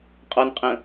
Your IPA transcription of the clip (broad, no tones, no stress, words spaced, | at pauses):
qʼɔnqʼə̃